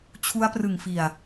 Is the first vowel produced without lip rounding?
no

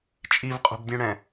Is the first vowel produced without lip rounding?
yes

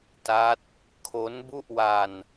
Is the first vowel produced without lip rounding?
yes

